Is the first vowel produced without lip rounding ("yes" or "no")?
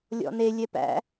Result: no